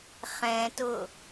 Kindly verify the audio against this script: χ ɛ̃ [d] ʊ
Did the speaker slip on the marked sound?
yes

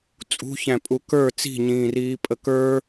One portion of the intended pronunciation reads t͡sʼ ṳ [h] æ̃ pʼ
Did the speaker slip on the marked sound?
yes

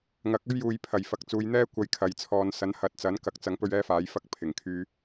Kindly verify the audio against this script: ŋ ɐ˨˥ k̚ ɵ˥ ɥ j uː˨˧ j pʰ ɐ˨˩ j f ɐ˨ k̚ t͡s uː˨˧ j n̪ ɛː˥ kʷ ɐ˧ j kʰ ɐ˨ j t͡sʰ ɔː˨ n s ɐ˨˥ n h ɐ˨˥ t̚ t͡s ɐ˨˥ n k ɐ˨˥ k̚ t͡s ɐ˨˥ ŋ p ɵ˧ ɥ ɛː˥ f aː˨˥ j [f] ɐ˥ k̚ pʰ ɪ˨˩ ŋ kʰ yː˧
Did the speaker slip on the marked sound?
no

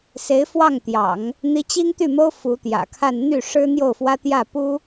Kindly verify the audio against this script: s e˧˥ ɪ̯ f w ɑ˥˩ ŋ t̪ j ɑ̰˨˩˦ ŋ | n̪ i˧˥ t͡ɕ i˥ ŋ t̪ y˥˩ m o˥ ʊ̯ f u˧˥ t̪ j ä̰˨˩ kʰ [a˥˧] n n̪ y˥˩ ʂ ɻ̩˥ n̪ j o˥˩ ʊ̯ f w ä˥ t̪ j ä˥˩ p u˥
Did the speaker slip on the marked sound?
no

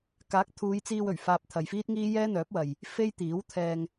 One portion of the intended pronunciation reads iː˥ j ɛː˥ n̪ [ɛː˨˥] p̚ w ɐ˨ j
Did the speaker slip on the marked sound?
yes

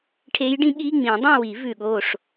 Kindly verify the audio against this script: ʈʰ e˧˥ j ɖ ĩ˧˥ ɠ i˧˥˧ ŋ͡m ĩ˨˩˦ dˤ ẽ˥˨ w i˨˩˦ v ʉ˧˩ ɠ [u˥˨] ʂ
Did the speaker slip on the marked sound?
yes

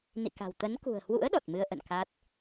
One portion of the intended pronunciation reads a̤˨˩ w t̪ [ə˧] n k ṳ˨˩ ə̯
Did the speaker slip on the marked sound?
yes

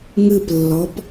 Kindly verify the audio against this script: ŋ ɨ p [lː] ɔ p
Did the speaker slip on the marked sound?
no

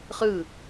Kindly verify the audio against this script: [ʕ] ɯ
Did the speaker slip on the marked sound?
yes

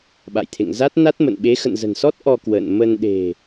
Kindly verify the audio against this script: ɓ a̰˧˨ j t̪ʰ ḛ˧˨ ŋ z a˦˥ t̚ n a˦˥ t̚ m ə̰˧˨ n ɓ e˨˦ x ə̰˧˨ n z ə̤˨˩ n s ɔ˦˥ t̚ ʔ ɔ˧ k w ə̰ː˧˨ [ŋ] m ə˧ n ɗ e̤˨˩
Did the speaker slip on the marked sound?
yes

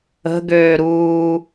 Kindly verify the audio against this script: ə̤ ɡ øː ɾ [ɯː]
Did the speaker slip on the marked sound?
yes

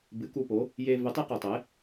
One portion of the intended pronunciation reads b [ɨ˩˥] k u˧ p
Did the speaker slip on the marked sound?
no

